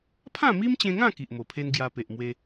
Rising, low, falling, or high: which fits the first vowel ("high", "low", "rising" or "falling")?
falling